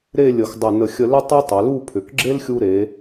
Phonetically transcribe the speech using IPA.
ɾ e˥˧ lʲ ə˧˩ x dˤ ʏ˧˩ n ə˧˩ xʲ ə˧ l ʏ˥ tˤ o˥ tˤ ʏ˩˧ l u˥˧ pʰ ʏ˩˧ k ɡ͡ǁ e˥ l xʲ u˧ ɾ e˩˧

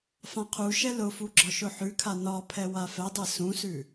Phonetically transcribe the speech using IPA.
f ã qʰ u ʃ ɛ l ʊ f u ɡ͡ǁ ɒ ʃ ʊ ħ ʉ kʰ a n ɒ pʰ ɛ w a f ɛ dˤ ɛ s ũ s ʉ

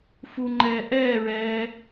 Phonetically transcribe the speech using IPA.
f u ŋ͡ǃ ɛː ʔ ɛː ɹ ɛː

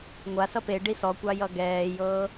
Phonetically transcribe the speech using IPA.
ŋʷ a s ʌ p e ɖ i s ɔ kʷ ɑ j ʌ ɡ ɛː j ɤː

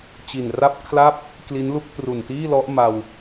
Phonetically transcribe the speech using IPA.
t͡ɕ i˨˩ n r a˥˩ p̚ kʰ l a˥˩ p̚ | k l i˦˥ n l u˦˥ k̚ t r u˨˩ n t iː˥˩ l ɔ˦˥ ʔ m a˧ w

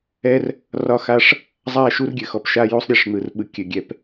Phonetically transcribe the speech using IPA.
ɛ˦ r | r ɒ˦ x a˦ ʂ | zˤ a˦˨ ʃ u˦ r ɡʲ ɘ˨ x ɔ˨ p ʃ a˦ j u˦ sˤ ɾʲ ɛ˨ ʂ n̪ ɯ˨ r ɓ ɯ˨ kʲ ɘ˨ ɡʲ ɛ˨ p

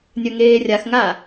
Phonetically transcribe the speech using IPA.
nʲ œ ŋ eː rʲ a x ŋ a

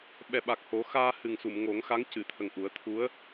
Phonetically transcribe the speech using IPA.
ɓ ɛ˨˩ ɓ a˨˩ k̚ h o˨˩˦ x aː˧ h ɨ˨˩ ŋ s u˨˩˨ m ŋ o˨˩˦ ŋ x a˧˥ ŋ c ɨ˨˩˨ t̪ʰ ə˨˩ ŋ ʔ u˨˩˦ ə̯ t̪ʰ u˧˥ ə̯

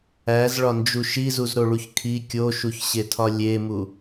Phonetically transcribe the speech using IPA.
æ z ɭ ɒ n d͡ʒ u ʃ i z u z ɾ o ɭ u ç kʰ i kʲ o ʃ u ç ɕ e tʰ ɒ lʲ e m u

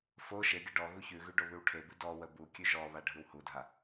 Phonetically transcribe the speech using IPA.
f o ʃ e ɡʲ ə ɖ ɔ ɣ u ç ʉ ɣ ʉ ɖ o β ʉ w ʈʰ e b ɨ d ɔ w ə b u kʲ ʉ ʒ ɔ β a ɖʱ ɯ w h u dʱ a

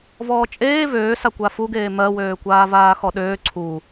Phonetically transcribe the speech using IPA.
v ɔː t͡ʃʼ eː v øː s a kʷ a f u ɡ eː m ɜ w øː kʷ aː v aː x ɔ ɗ øː ǀʰ u

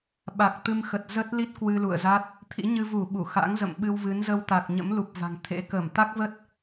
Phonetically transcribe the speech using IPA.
ɓ a˨˩ k̚ t̪ ɨ˧ m x ə˨˩ t̚ z ə˦˥ t̚ l i˦˥ t̚ k w ɨ˧ l ṵ˧˨ ə̯ z a˦˥ t̚ | t̪ʰ ḭ˧˥ ɲ ɨ˧ v u˧˩ ɓ u˧˩ x a̰˧˥ ŋ z ə̰˧˨ m ɓ ɨ˧ w v ɨ˨˦ n z ə˧ w t̪ a˨˩ k̚ ɲ ə̰˧˥ m l u˨˩ p̚ v a̤˨˩ ŋ t̪ʰ ḛ˧˥ k əː˧˩ m t̪ a˦˥ k̚ v ə˦˥ t̚

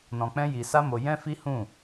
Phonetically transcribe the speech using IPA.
n ɔ̃˧ k͡p ɛ̃˦ j i˧ s a˦ m o˧ j ɛ̃˦ f i˦ h ũ˦˨

